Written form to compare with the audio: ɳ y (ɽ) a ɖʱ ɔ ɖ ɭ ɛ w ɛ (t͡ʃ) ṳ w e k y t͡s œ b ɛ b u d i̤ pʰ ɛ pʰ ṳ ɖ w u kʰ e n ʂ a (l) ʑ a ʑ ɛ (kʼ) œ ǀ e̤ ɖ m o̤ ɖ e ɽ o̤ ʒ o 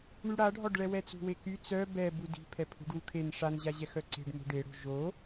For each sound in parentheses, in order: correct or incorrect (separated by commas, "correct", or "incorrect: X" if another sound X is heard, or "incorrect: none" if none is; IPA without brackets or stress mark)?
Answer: correct, incorrect: t͡s, incorrect: n, incorrect: x